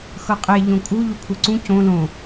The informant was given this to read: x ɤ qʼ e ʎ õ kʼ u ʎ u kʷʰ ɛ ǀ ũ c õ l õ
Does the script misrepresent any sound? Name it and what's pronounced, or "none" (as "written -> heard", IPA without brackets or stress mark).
none